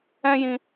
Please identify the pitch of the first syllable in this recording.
high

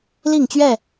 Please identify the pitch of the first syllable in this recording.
falling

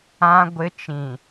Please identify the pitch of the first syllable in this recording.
high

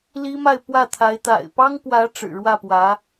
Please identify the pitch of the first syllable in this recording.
high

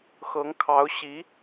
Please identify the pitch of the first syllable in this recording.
rising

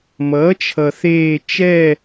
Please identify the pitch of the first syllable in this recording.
rising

